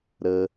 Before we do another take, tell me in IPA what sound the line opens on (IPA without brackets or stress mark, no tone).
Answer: ɾ